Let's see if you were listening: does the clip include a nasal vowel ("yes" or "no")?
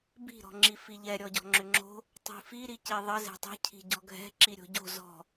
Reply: no